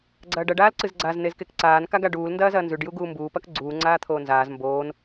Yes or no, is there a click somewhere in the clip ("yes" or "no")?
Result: yes